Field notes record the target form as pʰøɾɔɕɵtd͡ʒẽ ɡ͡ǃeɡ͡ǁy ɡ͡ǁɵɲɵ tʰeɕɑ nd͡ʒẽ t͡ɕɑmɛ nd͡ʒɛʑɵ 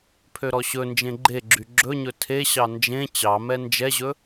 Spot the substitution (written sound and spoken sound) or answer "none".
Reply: t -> n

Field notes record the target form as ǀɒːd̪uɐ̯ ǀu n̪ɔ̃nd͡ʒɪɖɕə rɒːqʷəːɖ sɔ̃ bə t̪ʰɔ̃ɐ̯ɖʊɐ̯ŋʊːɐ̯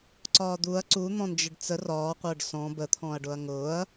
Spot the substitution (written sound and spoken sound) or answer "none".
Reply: ɕ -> t͡s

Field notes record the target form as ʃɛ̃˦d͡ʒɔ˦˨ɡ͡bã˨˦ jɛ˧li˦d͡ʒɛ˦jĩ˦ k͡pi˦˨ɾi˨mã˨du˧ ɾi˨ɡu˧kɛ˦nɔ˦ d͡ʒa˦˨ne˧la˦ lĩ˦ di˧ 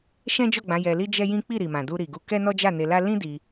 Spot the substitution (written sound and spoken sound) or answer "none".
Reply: none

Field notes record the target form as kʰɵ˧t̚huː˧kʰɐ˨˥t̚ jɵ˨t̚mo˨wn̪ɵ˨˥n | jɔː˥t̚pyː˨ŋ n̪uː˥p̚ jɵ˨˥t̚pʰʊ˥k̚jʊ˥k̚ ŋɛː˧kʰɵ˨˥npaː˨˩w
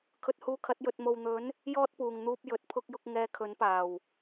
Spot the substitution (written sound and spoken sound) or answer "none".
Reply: yː˨ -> uː˨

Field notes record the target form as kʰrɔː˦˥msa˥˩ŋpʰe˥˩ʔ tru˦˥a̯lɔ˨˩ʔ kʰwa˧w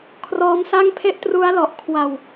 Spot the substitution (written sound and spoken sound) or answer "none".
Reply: none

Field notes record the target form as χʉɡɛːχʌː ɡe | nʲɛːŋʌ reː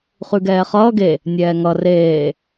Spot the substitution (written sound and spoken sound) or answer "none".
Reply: none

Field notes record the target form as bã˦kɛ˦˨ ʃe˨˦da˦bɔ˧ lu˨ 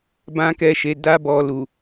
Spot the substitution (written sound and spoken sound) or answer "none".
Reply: none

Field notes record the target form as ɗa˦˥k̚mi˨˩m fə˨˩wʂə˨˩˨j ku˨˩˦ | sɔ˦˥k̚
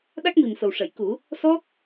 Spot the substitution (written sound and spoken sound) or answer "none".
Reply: none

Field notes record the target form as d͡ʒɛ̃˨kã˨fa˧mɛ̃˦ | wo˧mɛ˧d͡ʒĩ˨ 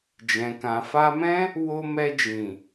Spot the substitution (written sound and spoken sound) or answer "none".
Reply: none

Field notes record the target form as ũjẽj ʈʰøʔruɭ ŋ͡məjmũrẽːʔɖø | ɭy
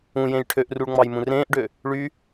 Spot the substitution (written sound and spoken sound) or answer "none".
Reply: ə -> ɑ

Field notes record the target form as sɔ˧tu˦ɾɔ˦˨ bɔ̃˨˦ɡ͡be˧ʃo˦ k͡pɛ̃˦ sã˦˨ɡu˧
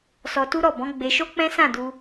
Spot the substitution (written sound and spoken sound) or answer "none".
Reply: ɡ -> d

